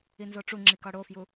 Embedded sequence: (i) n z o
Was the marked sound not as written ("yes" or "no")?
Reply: no